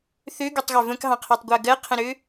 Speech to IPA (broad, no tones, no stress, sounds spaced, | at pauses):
θ ø ɡ ø tˤ ɣ ø v ə̃ k ɦ ɑ̃ qʰ ɜ tˤ ɡʷ ɜ ɡ ɜ qʰ ə̃ ɾ ø